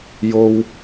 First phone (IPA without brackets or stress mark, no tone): j